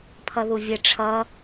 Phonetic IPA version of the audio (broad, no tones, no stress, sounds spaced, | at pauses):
pʰ ʌ ð u vʲ ə ʈ͡ʂʰ ʌ